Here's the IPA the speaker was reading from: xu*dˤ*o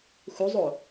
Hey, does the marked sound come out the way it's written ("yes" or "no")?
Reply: no